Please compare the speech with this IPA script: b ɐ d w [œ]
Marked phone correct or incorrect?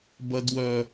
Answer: correct